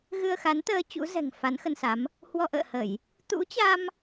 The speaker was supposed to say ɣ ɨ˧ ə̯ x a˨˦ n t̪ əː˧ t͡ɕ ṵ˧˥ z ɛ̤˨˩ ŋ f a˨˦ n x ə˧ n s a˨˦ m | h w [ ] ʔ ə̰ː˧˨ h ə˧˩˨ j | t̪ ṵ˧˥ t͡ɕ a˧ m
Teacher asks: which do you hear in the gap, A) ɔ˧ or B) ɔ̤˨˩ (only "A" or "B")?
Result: A